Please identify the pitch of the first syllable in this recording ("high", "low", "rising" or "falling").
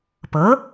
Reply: rising